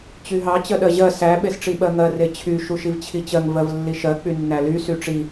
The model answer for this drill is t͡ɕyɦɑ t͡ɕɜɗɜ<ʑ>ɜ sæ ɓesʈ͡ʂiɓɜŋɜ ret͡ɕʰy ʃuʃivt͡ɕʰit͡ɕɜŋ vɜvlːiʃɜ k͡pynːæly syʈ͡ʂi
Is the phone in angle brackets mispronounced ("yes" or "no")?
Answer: no